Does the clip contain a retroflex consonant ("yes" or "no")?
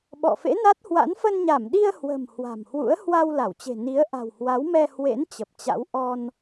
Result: no